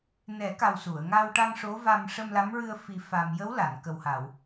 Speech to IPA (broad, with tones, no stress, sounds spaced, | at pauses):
n ɛ˨˩˦ k a˨˩ w s u˨˩˨ ə̯ ŋ a˧ w ʈ a˧ ŋ ʂ o˧˥ v a˧ m ʂ ə˧ m l a˧˥ m ɹ ɨ˧ ə̯ f i˧ f a˧ m j ə˧˥ w l a˨˩˨ n k ə˨˩ w h a˨˩˨ w